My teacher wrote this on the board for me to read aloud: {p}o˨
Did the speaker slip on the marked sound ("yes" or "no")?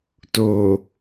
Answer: yes